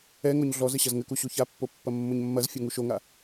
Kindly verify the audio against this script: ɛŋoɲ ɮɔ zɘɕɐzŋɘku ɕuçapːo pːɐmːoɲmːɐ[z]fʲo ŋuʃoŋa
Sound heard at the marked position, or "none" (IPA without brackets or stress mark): z